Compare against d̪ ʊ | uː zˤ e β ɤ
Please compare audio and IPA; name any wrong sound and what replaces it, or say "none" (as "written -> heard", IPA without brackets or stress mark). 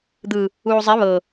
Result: ʊ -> ɯ